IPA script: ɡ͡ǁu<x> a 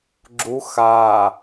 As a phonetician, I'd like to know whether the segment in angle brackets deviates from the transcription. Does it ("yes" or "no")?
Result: no